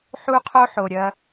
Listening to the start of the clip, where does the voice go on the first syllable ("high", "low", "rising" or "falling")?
high